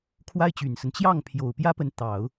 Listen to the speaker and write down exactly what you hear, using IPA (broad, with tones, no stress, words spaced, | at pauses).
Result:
kʰwa˥ɪ̯t͡ɕy˨˩nsə˦n t͡ɕjɑ˥˩ŋpʰjo˨˩ʊ̯ pjä˥pə˧˥n t̪ɑ˨˩˦ʊ̯